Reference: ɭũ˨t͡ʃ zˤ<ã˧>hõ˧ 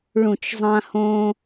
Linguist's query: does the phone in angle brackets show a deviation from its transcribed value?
no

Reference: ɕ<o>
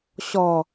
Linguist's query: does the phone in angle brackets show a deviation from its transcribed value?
yes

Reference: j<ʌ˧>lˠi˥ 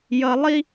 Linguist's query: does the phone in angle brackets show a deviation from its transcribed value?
no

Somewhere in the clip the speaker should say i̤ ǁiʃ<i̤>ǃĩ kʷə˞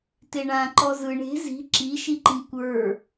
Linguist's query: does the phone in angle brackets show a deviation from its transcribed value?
yes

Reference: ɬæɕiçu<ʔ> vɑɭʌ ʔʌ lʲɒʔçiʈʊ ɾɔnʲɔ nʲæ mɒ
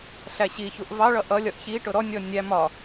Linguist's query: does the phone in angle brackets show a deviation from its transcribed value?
no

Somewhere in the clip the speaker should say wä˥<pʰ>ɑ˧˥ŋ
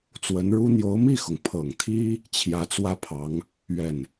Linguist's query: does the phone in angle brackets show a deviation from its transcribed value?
no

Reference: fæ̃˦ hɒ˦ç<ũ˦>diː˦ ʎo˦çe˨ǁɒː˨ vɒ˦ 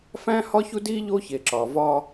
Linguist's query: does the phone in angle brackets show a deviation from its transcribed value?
yes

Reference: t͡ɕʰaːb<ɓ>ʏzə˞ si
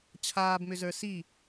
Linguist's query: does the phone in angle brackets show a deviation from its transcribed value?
yes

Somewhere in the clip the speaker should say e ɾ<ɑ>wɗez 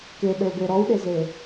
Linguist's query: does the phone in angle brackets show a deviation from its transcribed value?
yes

